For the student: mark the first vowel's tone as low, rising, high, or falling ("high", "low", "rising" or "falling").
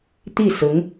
falling